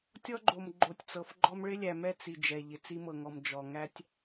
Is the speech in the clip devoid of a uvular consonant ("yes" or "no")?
yes